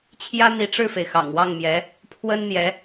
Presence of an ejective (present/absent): absent